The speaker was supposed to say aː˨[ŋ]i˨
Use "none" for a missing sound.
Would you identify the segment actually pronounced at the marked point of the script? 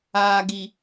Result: ɡ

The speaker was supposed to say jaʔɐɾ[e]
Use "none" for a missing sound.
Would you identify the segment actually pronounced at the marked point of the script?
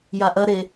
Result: e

